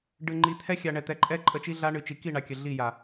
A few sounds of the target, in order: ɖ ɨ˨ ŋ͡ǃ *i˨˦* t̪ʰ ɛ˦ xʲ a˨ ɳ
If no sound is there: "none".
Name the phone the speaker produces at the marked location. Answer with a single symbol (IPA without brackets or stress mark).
i˨˦